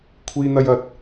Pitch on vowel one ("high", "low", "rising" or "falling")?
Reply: high